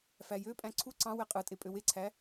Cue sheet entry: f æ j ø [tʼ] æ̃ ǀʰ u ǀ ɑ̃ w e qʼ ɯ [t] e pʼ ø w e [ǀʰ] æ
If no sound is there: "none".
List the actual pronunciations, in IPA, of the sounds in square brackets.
pʼ, tʼ, ǀʰ

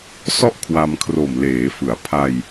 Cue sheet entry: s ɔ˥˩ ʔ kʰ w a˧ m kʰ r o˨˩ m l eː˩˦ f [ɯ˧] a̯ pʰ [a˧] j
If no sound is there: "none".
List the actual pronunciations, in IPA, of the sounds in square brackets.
ɯ˩˦, a˧

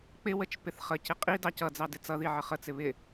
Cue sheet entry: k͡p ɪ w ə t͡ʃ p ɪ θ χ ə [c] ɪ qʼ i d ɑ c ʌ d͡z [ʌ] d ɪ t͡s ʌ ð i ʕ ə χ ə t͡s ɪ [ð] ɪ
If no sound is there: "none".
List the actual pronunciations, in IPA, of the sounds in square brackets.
c, ɑ, β

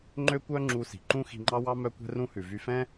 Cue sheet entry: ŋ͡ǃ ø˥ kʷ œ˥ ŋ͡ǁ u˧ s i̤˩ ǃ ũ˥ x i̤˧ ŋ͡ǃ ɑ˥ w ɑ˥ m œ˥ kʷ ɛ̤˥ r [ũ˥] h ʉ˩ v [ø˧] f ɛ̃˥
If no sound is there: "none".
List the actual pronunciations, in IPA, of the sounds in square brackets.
ũ˥, y˧

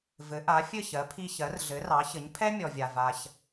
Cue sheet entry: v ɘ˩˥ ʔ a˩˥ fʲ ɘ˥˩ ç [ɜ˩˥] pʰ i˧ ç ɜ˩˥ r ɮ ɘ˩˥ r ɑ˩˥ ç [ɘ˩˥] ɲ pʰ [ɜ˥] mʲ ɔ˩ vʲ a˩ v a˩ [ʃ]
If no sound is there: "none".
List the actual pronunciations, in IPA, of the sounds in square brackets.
ɜ˩˥, ɘ˩˥, ɛ˥, ç

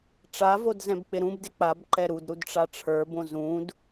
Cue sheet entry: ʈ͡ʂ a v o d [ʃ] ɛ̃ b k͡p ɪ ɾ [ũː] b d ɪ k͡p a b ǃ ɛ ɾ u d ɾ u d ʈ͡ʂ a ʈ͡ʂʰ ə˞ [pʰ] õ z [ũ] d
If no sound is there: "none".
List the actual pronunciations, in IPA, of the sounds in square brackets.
z, ũ, b, ũ

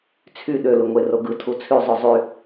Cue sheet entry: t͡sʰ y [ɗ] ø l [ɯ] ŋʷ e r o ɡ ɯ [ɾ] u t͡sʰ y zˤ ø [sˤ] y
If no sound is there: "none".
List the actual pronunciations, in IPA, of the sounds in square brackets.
ɗ, ɯ, tʰ, zˤ

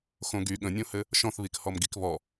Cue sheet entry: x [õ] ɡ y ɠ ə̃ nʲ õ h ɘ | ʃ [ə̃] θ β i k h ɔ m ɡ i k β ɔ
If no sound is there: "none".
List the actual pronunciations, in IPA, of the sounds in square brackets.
õ, ɔ̃

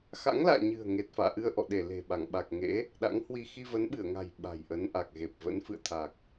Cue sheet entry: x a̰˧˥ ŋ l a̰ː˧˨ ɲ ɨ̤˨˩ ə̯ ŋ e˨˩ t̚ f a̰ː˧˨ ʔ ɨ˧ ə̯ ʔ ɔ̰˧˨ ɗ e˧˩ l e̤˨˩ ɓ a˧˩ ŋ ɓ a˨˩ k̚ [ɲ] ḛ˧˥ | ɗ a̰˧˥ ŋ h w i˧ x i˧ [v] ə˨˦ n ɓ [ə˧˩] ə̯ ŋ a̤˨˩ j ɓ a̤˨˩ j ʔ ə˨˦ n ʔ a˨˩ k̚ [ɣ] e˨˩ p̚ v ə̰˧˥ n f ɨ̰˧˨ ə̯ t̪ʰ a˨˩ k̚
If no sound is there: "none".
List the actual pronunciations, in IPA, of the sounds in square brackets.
ŋ, v, ɨ˧˩, ɣ

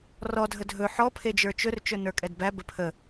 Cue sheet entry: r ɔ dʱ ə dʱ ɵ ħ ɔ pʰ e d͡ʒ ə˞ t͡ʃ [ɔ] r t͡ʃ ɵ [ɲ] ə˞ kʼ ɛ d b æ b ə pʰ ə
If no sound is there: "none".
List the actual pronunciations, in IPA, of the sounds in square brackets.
ɵ, n

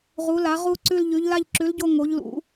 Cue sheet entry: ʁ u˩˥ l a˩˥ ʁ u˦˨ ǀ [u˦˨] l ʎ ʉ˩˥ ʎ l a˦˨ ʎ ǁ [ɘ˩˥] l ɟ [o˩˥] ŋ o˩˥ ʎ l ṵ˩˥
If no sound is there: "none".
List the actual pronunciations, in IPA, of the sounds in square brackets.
ʉ˦˨, ʉ˩˥, o˦˨

